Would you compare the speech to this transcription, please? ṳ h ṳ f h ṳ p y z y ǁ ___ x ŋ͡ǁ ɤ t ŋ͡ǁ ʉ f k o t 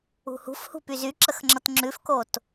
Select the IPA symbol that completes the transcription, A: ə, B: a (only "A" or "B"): A